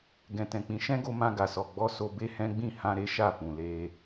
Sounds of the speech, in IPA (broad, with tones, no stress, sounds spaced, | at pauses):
ɡ ɛ̃˨ t ɛ̃˨ k͡p ĩ˨˦ ʃ ɛ̃˦ ɡ o˧ m ã˧ ɡ a˨ s ɔ˨ ɡ͡b ɔ˧ s o˧ b e˧ h ɛ̃˦ ɡ͡b ĩ˦˨ h ã˧ ɾ e˦ ʃ a˦˨ f ũ˨ l e˧